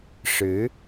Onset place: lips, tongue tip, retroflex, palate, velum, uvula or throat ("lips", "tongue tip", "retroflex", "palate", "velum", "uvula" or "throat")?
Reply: retroflex